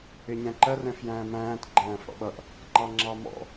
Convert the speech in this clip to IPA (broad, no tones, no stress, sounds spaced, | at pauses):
ɪ ɲ æ̃ ǃ ɜ r ɛ̃ f j æ̃ː m æ̃ː t ɡ͡ǃ æ̃ː f ɽ ɔ̰ ɓ ʌ ʔ | ŋ͡ǃ ɑ ŋ͡ǁ ɑ m ɔ̰